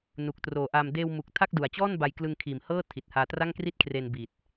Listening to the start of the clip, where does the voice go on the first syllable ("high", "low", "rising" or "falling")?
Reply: low